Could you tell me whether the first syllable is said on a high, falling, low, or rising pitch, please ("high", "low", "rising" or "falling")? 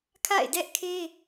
falling